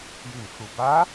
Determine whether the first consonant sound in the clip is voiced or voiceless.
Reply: voiced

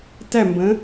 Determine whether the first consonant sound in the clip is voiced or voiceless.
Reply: voiceless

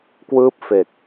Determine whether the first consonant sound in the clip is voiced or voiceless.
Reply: voiceless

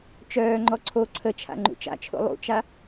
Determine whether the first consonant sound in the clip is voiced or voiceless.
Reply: voiceless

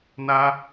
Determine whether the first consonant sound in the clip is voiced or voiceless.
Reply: voiced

